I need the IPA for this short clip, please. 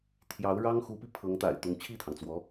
t̪ʰjɑ˧˥ʊ̯ɻɑ˥ŋxu˧˥pi˧ pʰɤ˧˥ŋt̪a̰˨˩ɪ̯t̪ʊ˧˥ŋ t͡ɕʰi˥˩t̪ʰɑ˩ŋt͡swɔ˧˥

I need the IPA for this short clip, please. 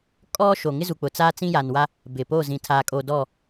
kʼɔ˦ ʃo˨ŋɪ˦zu˨k͡pʊ˨ t͡saː˦t͡sĩ˦ja˨nwa˦ | bɪ˨po˦˨ zĩ˨tʰaː˨ kʼo˨ dɔ˦˨

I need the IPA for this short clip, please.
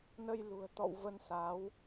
nə˧jlṳ˨˩ə̯ t̪ɔ̰˧˨w və˧nsa˨˦w

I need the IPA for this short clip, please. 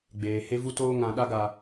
ɡ͡beː˨ he˧vu˧toː˧ŋã˨ ɗa˧ɡa˨

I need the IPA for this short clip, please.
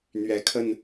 n̪ɥɛ˨˦kʰə˥˨n

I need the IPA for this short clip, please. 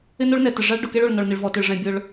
ɪ˥no˥ɭnɛ˩tɪ˩ ʐa˥ɭ ɖʊ˩ke˥ɭo˩ɭ nɔ˩ɭ nɪ˩ɭvɔ˩tʊ˩ɭʐɛ̃˩ bʲʊ˩ɭ

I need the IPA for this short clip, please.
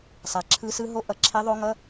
sˤa˨˩ ǁʰɯ˦˥sɯ˦˥ɦo˦˥ ʔʌ˨˩ǁʰe˦˥ðˤo˦˥ŋʌ˧˥˧

